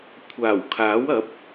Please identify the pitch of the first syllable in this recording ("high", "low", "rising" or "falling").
low